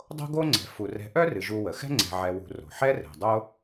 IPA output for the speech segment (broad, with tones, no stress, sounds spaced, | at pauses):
dˤ o̤˥ ɡ o˥ ŋ͡ǀ ɛ̤˨ f u˨ r ɛ̤˦ ʔ œ˥ r ɨ˩ ʒ u˨ w ə˩ x ɛ̤˥ ŋ͡ǀ ɛ̤˨ ʕ ɛ˨ w ṳ˨ r o̤˩ ħ ɛ˦ r ɛ̤˩ dˤ o˥